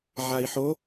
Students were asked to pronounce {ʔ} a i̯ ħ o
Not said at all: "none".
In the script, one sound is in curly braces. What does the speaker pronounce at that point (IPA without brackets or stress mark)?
ʕ